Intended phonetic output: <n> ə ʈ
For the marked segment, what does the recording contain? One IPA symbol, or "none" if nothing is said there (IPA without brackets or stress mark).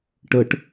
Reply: ʈ